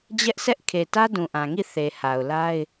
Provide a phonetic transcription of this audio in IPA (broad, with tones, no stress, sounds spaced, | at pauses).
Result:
d͡ʑ ɛ˦ ʔ sʰ ɛ˦ ʔ kʰ e˨ t ä˦ d ũ˨ ʔ ã˨ ŋ i˦˨ θ e˨ h a˨ ʊ̯ l a˦ ɪ̯